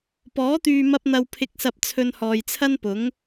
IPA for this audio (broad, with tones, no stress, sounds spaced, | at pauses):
p ɔː˨˥ t̪ yː˨ m ɐ˧ p̚ n̪ ɐ˨ w pʰ ɪ˨ k̚ s ɐ˨ p̚ t͡sʰ ɵ˧ n h ɔː˨ j t͡sʰ ɐ˥ n p ʊ˨˥ ŋ